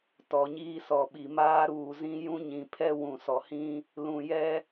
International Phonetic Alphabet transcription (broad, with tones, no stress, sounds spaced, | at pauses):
t ɔ˨ ɲ iː˦ s ɔ˨ ɓ i˨ m aː˦ ɾ uː˨ z ĩ˦ j ũ˦ ɲ ĩ˨ pʰ ɛ˦ w ũ˨ s ɔ˨ h ĩ˦ | l ũ˨ j ɛ˦